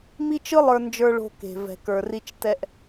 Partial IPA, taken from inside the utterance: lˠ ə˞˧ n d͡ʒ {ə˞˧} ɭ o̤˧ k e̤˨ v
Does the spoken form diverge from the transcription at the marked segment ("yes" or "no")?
no